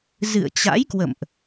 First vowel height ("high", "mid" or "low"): high